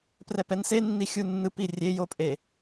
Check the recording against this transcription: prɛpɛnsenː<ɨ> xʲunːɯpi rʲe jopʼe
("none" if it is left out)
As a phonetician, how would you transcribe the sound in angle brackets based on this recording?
i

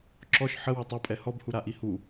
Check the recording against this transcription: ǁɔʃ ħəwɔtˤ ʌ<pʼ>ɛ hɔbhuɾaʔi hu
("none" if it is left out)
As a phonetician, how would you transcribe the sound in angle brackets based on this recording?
pʼ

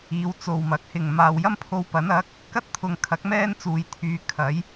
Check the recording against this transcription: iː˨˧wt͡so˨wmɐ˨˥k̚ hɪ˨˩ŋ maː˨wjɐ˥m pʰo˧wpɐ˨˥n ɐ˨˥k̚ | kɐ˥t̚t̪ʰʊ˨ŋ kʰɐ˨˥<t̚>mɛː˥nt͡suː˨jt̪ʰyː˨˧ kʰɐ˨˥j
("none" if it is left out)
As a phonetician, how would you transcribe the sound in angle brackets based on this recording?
k̚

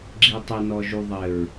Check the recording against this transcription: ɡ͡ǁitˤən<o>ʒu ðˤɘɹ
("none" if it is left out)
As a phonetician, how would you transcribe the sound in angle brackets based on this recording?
ɔ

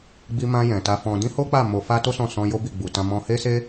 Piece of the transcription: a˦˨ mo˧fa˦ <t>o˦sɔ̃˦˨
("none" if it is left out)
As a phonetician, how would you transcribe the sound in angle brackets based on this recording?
t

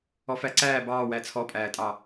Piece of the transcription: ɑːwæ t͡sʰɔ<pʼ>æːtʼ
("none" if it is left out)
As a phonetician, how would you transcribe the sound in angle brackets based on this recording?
pʼ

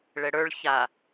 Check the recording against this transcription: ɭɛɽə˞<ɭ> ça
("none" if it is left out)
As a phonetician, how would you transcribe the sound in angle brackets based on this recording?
ɭ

